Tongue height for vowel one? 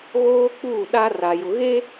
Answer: mid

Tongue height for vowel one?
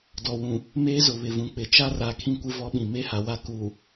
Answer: mid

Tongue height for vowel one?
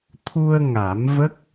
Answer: high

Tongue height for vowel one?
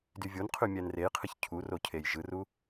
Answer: high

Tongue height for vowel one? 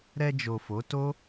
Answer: mid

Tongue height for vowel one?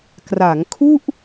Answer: low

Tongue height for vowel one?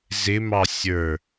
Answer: high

